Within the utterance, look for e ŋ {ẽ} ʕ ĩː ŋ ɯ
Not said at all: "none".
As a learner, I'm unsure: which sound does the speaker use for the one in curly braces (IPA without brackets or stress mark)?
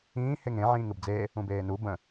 ẽ